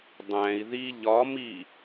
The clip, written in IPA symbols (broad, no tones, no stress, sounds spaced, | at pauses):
dˤ æ̃ i̯ ð i ʎ ɒ m i